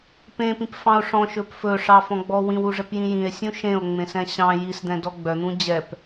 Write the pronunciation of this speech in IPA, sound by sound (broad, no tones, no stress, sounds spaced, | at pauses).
p ẽ p ĩ p f ɑ̃ o̯ ʂ ɔ̃ ʃ ɵ p f ɵ ʂ ɑ f ɔ̃ ɡ͡b ɔ w ĩ w u ʐ ɛ p j ĩ j ĩ e̯ sʲ ũ ʃ ẽ o̯ ŋ͡m ẽ s ɛ̃ ɕ ɑ̃ j i s d̪ ɛ̃ d ɔ ɡ͡b œ n̪ ũ d͡ʑ ɛ p